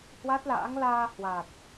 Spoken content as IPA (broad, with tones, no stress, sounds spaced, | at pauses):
h w a˦˥ t̚ l a̰ː˧˥ ŋ l aː˧ h w a˨˩ t̚